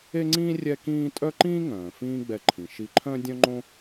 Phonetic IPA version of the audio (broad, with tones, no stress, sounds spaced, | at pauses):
e˥ ŋ͡ǀ ĩː˥ rʲ ɛ˥ k ĩː˥ tʼ œ˥ ǃ ĩː˥ ŋ œ̃ː˩ f ĩː˥ ɡ͡b ɛ˧ ǃʰ ĩ˩ ʃ i˧ ǃʰ œ̃˥ dʲ œ̃˥ ŋ͡ǃ õ˥